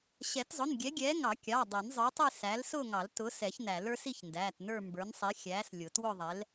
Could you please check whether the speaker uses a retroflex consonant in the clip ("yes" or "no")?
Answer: no